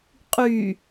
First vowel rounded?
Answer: yes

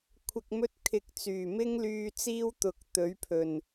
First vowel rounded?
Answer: no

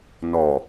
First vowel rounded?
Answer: yes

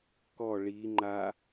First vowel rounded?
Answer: yes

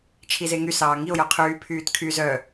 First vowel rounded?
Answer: no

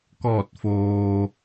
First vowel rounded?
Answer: yes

